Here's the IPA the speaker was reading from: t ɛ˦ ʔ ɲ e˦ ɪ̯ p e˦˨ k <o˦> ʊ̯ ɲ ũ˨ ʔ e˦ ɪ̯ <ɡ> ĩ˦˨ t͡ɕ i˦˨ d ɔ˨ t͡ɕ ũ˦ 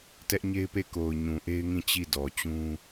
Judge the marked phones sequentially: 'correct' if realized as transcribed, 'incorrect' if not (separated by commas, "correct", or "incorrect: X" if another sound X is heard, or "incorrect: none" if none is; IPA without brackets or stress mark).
incorrect: o˨, incorrect: ŋ